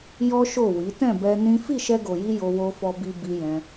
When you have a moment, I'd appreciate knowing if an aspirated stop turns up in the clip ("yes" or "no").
no